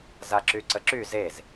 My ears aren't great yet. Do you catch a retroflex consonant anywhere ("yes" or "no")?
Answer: no